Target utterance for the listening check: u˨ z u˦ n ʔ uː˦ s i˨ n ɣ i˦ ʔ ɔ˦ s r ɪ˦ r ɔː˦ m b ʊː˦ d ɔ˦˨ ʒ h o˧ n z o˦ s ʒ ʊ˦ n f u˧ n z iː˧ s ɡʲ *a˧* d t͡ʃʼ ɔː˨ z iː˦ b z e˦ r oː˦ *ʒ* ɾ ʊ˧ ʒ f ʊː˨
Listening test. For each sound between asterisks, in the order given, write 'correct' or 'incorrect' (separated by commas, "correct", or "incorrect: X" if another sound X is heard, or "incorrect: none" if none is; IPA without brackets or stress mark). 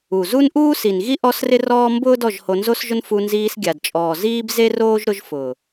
incorrect: a˨, correct